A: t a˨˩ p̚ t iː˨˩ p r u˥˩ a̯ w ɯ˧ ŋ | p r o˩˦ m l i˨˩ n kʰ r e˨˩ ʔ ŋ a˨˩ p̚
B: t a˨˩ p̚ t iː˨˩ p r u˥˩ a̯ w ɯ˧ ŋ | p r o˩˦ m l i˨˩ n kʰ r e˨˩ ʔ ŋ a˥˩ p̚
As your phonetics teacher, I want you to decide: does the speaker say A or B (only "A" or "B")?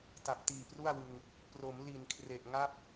B